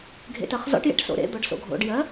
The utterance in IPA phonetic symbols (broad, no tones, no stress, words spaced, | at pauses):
ɡʱḛtɜχzɔ̰ʈjḛʈ so̰ɾḛd̪ɔɖ so̰ɡʱo̰ɖjɜ